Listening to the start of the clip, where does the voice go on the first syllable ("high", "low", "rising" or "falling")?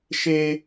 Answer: high